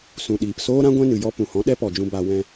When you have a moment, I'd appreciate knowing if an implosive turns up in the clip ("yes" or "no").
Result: yes